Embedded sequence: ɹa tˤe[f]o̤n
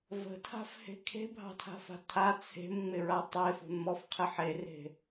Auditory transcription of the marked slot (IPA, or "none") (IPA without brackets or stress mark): f